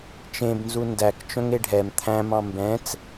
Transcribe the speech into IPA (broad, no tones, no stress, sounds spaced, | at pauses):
t͡ʃ ẽ b n z u n d æ k t͡ʃ œ̃ ŋ e ɖʱ ɛ m t̪ʰ æ̃ m ɑ̃ m b ɛ̃ t͡s